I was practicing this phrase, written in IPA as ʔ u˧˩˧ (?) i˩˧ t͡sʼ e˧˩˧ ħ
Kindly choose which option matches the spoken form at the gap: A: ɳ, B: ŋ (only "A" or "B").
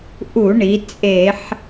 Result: A